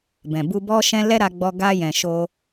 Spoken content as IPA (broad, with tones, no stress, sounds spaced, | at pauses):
b ɛ̃˨ b u˧ b ɔ˦ ʃ ɛ̃˦ l ɛ˦ ɾ a˧ ɡ͡b ɔ˧ ɡ a˧ j ɛ̃˨ ʃ o˧